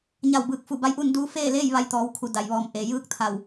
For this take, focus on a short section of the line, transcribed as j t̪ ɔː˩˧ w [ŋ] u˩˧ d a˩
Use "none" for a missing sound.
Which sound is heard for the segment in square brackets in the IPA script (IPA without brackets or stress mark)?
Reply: kʰ